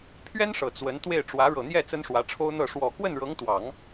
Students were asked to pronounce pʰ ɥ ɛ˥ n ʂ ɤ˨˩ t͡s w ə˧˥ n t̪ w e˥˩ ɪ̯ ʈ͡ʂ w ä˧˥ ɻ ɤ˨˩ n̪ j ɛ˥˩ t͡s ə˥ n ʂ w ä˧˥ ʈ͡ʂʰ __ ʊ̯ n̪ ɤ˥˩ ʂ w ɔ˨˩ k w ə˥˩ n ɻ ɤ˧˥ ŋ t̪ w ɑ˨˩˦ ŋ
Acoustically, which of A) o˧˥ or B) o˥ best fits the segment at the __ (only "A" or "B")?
B